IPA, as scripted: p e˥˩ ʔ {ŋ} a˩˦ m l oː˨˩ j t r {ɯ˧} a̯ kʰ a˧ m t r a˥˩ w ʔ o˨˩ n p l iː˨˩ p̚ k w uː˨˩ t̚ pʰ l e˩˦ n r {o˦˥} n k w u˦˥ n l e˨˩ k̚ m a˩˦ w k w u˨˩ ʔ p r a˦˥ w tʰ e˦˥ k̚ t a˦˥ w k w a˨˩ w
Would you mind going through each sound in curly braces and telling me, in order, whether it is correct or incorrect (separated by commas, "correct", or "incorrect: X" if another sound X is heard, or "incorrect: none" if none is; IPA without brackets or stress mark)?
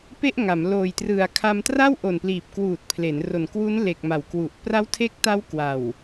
correct, incorrect: ɯ˩˦, incorrect: o˨˩